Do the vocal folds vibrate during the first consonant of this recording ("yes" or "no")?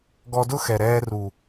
yes